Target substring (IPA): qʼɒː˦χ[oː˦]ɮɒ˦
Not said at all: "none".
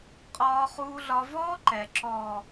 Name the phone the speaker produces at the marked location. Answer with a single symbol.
uː˦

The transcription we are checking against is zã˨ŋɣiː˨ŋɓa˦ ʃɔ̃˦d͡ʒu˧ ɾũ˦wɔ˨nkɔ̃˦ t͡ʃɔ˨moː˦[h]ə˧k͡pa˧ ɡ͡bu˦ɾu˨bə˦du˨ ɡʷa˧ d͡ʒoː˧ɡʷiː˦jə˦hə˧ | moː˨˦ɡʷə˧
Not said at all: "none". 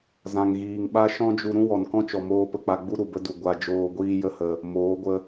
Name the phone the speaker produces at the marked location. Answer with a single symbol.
p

